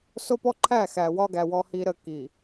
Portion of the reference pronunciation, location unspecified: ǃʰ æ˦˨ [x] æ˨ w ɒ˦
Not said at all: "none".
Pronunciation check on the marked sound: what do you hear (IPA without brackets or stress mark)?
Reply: x